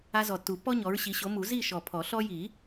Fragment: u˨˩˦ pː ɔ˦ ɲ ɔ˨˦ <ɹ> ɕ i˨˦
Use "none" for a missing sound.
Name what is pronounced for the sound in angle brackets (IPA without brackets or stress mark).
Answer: ɹ